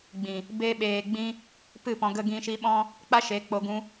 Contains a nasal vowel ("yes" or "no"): yes